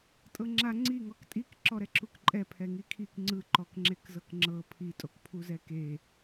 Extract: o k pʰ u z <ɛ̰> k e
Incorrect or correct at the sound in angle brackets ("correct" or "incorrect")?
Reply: incorrect